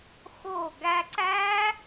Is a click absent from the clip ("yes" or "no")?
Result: no